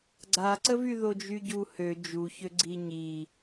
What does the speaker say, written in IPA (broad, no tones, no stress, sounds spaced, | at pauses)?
ɡ͡ǀ a ǀ ə v y ð o d͡ʒ y ɟ u h ø d͡ʒ u ç ø ɡ͡ǀ i ɲ i